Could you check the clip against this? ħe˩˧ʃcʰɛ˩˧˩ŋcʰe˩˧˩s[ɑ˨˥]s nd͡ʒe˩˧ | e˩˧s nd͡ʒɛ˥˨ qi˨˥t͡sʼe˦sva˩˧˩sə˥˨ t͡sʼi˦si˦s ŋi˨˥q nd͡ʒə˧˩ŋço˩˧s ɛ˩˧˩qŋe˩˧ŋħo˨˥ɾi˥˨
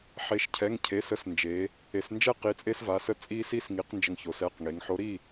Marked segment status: incorrect: ə˨˥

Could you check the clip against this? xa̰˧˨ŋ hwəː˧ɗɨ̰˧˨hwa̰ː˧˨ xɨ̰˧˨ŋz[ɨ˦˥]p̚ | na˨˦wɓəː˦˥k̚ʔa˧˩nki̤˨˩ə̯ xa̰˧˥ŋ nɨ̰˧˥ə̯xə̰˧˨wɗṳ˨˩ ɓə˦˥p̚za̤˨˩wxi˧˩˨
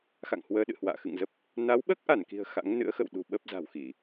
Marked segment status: incorrect: ə˦˥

